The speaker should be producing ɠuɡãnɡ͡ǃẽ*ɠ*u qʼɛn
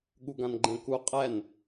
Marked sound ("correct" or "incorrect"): incorrect